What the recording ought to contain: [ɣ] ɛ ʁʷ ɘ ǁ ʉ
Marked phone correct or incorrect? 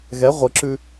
correct